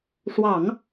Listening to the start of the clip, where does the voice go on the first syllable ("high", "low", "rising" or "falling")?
low